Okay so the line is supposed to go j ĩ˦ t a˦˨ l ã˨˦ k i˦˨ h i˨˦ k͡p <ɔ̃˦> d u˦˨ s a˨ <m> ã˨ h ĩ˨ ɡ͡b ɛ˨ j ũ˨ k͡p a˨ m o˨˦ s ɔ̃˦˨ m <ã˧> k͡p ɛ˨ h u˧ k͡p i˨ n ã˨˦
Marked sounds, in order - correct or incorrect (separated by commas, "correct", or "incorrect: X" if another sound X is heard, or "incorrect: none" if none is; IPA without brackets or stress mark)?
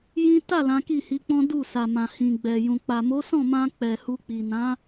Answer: correct, correct, correct